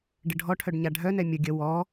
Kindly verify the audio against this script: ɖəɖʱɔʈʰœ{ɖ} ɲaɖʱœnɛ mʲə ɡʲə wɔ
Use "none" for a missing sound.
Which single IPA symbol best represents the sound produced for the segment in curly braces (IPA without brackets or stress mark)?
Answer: ɖ